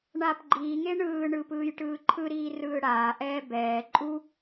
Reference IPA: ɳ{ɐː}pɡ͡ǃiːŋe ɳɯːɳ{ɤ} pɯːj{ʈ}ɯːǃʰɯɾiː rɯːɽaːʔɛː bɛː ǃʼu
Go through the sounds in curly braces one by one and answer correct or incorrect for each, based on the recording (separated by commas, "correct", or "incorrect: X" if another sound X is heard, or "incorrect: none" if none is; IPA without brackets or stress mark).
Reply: incorrect: aː, incorrect: ɯ, correct